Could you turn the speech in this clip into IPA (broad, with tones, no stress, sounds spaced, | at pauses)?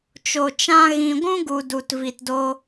t͡ʃ o˨ t͡ʃ ã˧ ɣ ĩ˨ ɡʷ ũ˦ ɡ u˨ d u˨ t v i˨ t d o˧